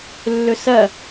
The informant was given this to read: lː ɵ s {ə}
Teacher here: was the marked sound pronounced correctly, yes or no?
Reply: no